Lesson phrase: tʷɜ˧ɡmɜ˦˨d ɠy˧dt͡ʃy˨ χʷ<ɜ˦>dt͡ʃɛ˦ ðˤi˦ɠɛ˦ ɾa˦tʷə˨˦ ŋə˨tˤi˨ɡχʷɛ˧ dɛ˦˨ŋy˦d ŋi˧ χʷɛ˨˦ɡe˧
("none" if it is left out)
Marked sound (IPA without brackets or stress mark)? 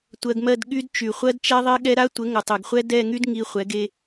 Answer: ɜ˦